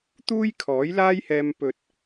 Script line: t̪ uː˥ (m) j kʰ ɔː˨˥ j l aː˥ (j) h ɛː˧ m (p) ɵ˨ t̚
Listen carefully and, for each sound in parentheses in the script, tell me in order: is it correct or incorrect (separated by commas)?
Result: incorrect, correct, correct